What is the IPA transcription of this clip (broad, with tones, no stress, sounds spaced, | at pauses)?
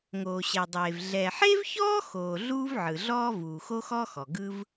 ŋ oː˩ ɕ ɛ˩ dˤ eː˩ v ɮ ɛ˩ ħ e˥ v ç ɔː˥ x oː˩ ɮ uː˥ v ʕ ɯ˩ ɮ ɔː˥ v uː˩ x o˥ x ɔ˥ x ɔ˩ ɡ ɯ˥ v